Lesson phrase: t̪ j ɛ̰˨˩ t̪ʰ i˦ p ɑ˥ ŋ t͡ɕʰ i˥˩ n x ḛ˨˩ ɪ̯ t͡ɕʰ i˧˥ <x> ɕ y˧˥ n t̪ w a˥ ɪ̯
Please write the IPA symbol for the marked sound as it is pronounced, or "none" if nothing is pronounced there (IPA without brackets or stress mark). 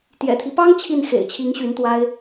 ŋ